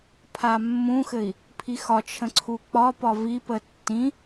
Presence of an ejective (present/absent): absent